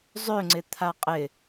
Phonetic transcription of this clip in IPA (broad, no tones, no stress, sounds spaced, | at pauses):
zˤ ø ŋ͡ǀ ɪ t̪ʰ a qʼ ɪ